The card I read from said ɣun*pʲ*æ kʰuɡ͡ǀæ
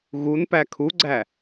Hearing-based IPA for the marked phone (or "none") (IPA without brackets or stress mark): p